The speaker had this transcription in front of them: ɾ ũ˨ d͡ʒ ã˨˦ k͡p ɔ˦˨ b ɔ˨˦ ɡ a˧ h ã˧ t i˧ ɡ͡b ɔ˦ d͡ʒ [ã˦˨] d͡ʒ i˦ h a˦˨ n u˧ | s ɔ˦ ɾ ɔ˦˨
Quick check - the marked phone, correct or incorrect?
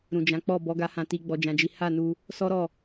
incorrect